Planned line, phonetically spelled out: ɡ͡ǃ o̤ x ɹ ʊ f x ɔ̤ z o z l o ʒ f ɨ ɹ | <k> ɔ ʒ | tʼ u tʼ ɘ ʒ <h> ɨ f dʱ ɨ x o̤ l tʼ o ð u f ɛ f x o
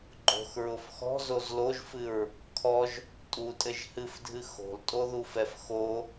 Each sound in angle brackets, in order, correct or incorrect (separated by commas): incorrect, correct